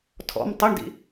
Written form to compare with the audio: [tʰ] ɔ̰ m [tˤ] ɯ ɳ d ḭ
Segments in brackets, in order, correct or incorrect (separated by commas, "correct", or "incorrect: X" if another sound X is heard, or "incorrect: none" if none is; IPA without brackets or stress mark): correct, correct